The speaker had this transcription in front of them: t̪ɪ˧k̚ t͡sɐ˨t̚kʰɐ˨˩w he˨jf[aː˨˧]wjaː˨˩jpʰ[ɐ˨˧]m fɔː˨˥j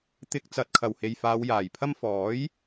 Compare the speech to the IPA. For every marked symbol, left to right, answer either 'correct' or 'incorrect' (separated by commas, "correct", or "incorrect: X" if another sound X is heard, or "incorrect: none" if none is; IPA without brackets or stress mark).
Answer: correct, incorrect: ɐ˥